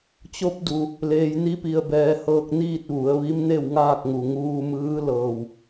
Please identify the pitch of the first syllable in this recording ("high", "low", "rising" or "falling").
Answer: rising